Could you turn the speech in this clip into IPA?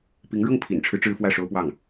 p i˧˥ ŋ ɻ ɤ˥˩ ŋ pʰ ḭ˨˩ n ʈ͡ʂʰ ɻ̩˦ ʈ͡ʂ ɻ̩˥ f w ä˥˩ ʂ o˥ ʊ̯ p w ɑ˥˩ ŋ

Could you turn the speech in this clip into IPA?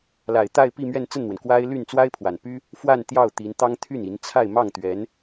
l a˨˩ ɪ̯ t̪ a˥˧ ɪ̯ p i˥˧ m ɥ ɛ˥˧ n t͡s ə˥˩ n n̪ w ə˩ n k w a˥ ɪ̯ l y˥˩ n t͡s w a˥ ɪ̯ pʰ w a˨˩ n p y˥ | f w a˥˧ n t̪ j ɑ˥˩ ʊ̯ t̪ i˧˥ n t̪ ɑ˥ ŋ t̪ʰ y˥˩ n i˧˥ n t͡sʰ a˥˧ ɪ̯ m ɑ˥˩ ŋ t̪ ɥ ɛ˧˥ n

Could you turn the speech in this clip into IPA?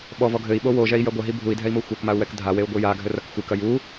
ɓ ɔ v ɔ ɡʱ ɘ i̯ ɓ o w o ʒ ɛ i̯ j ɐ ɡʷ ɐ ɦ i bʱ u i̯ dʱ ɛ i̯ m o xʷ ɛ k m a u̯ w ɛ k dʱ a w e u̯ ɡʷ ɨ j a ɡʱ ɘ r ɐ k xʷ ɨ k ɐ j u

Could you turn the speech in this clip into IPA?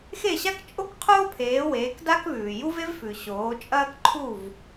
x e˥˩ ɕ a˥ k t͡ʃʼ o˥ k qʰ oː˥ pʰ eː˩˥ w eː˩˥ k d a˥ k β ʉː˩ j u˥ v e˥ v f ʉ˩ ɕ oː˩˥ t͡ʃʼ ɐː˥ k ǃʰ u˥˩ v

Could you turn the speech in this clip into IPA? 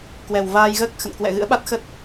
k w ɛ˨˩ w v aː˧ j ɣ əː˦˥ k̚ x ə̰˧˨ n k w ɛ̰˧˨ ɣ ɨ̰˧˥ ə̯ ɓ a˦˥ t̚ x ə˦˥ t̚

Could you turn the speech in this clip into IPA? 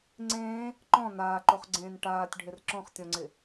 ŋ͡ǀ ẽː | ǃ ɔ̃ n aː ǃ o χ ɡ͡ǀ ẽː n ʈ aː tʲ ɖʱ ɪ r ǁ ɔ̃ χ tʲ ɔ̃ ŋ͡ǀ ɪ

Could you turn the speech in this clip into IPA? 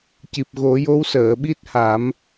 c i˨˩ p̚ ɣ o˨˩˦ j o˧˥ w s əː˨˩˨ ɓ i˦˥ t̚ h a˨˩˦ m

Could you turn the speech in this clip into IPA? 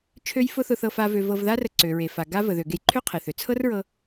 t͡ʃʰ ø˥ j f ʊ˥ θ ʊ˧ θ ɤ˧ f a˧ v ø˧ v ɤ˧ v ð a˥ r ə˧ ǀ ø˩ ɹ e˩ f a˩ ɡ a˥ v ə˩ ð ø˩ ɡ e˧ j ǃʰ ø˥ qʰ e˩ θ ø˩ t͡sʰ ɤ˥ r ɹ ɤ˧

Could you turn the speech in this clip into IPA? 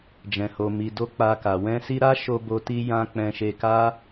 d͡ʒ ɛ̃˨ h o˨ m i˨ d o˧ k͡p a˧ k a˨ w ɛ̃˧ s i˧ ɾ a˦ ʃ o˧ b o˧ t i˧ j ã˧ k͡p ɛ̃˧ ʃ e˧ k a˦

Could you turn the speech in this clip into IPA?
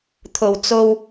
t̪ʰ o˨˩ w t͡s o˧ w

